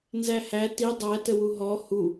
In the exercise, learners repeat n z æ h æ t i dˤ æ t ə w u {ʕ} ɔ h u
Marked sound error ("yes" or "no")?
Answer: yes